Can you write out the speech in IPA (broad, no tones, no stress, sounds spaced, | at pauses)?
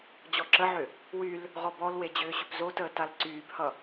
d͡ʑ ɔ ǁ ə ʕ ʏ | w y l | ʁ ɔ b ɔ l w e d͡ʑ ʏː ɕ ʏ p z o t əː t a l ǀ yː b h ʌ